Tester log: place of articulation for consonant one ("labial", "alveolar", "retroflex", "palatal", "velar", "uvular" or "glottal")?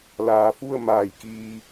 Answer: alveolar